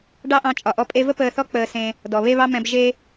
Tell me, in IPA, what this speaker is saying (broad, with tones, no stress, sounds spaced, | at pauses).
ɖ ɑ˦ ʔ ɑ̃˧ t͡ʃʼ ɒ˨ ʔ ɔ˧ pʼ e˧ v ə˦ p əː˧ θ ɔ˦ k͡p əː˧ s ẽ˧ | d ɔ˨ β e˦ β ɑ˦ m ɛ̃˧ b ʒ e˦